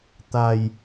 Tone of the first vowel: low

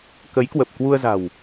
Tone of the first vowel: rising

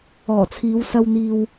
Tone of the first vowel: low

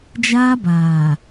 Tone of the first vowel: high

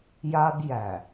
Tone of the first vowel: high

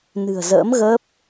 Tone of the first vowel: low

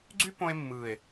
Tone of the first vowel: high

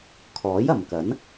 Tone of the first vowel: rising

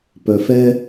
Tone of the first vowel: low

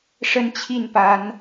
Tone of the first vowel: high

